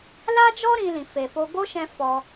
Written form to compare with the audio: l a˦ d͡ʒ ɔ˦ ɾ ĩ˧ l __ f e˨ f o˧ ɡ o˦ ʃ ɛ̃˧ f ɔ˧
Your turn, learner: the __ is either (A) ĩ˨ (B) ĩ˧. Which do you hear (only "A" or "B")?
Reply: A